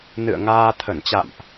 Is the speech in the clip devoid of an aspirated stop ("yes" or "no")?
no